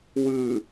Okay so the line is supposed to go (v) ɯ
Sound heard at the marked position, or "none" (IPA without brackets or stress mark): w